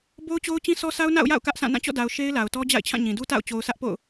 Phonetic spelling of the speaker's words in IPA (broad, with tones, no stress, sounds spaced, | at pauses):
b o˦ ʊ̯ t͡ɕ o˦ ʊ̯ t͡ɕ ĩ˦ sʰ ɔ˦ s a˦ ʊ̯ n a̰˦˨ ʊ̯ j a̰˦˨ ʊ̯ k ä˦ ʔ s ã˦˨ n ã˦˨ t͡ɕ ɔ̰˦˨ d a˨ ʊ̯ ʃ e˦ ɪ̯ l a˨ ʊ̯ t ɔ˦ d͡ʑ a̰˦˨ ɪ̯ t͡ɕʰ ã˦˨ ɲ ĩ˨ d u˦ t a̰˦˨ ʊ̯ t͡ɕ o˨ ʊ̯ sʰ ä˦ ʔ p o̰˦˨ ʊ̯